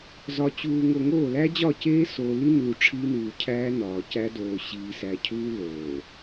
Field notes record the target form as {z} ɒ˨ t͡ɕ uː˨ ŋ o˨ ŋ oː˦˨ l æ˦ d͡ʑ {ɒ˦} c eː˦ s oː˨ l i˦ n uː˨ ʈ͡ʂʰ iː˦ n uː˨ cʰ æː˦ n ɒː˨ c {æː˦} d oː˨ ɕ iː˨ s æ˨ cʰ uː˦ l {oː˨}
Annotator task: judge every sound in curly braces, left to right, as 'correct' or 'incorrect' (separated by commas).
correct, incorrect, incorrect, correct